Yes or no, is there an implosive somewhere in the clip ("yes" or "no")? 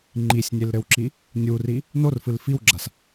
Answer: no